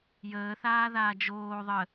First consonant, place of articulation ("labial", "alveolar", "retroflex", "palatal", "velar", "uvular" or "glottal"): palatal